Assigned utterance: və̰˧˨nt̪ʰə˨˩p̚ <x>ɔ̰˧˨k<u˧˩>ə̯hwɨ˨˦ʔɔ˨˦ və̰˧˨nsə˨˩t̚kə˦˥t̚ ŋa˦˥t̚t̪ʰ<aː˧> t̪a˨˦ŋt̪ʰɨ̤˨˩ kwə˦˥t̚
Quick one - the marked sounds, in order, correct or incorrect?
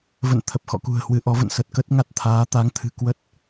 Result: correct, incorrect: ṳ˨˩, incorrect: aː˨˦

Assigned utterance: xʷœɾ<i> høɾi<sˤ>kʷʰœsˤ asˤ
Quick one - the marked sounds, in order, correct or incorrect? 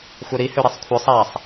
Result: correct, correct

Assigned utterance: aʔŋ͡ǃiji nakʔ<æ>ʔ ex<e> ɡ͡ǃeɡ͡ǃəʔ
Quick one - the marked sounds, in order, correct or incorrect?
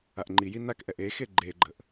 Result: incorrect: ɛ, correct

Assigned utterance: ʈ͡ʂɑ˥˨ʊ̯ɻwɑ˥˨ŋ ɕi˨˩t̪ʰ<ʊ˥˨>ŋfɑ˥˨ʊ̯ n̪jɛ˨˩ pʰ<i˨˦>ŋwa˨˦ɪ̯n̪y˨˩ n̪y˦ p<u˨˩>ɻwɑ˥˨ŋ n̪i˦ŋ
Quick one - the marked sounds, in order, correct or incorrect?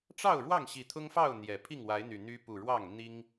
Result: incorrect: ʊ˦, incorrect: i˥˨, correct

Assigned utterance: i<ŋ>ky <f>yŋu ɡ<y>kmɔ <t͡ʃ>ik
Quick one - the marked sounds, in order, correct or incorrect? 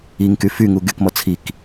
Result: correct, correct, correct, incorrect: t͡sʰ

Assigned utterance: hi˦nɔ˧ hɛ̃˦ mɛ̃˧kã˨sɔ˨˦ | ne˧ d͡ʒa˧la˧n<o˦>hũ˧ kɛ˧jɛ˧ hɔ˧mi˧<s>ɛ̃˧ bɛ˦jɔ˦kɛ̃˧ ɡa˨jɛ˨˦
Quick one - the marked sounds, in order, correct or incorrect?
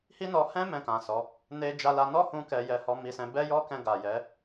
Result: incorrect: ɔ˦, correct

